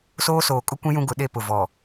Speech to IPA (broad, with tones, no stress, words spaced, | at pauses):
soː˦soː˨kʼʊ˦kʷĩ˦ jũ˦ɡʊ˨˦ ɗe˦pʊ˨ vɔ˨